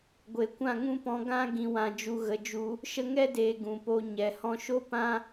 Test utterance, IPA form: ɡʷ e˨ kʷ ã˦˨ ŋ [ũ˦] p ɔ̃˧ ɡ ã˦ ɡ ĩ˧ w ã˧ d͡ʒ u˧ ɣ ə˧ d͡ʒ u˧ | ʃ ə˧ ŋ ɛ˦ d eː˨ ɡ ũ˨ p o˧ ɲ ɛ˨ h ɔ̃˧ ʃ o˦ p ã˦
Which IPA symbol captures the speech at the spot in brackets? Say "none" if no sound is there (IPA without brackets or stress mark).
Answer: ũ˦